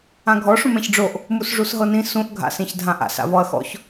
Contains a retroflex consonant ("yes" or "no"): yes